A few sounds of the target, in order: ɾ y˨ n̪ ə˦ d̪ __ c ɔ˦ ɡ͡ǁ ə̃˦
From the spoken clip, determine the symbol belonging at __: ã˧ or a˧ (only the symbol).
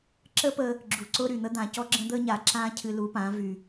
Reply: ã˧